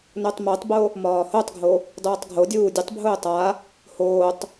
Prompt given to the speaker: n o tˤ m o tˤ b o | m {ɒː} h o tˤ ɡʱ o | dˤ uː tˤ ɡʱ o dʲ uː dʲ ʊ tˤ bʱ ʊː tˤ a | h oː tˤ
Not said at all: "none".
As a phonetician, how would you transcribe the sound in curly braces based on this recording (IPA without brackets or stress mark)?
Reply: ɒː